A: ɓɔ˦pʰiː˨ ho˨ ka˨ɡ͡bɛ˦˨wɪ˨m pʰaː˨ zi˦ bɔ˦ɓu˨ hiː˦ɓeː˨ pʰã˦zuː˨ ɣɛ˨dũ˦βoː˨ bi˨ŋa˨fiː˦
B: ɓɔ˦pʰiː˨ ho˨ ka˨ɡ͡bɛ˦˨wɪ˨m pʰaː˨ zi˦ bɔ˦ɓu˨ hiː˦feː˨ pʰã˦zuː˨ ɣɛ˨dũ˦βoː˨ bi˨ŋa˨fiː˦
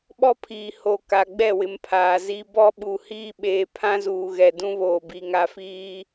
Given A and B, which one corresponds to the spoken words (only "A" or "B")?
A